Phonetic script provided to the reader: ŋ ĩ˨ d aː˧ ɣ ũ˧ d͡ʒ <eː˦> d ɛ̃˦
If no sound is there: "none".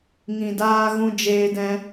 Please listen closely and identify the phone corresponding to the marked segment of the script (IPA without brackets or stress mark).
eː˦